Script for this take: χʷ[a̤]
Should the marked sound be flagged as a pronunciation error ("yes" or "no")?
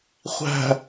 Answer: yes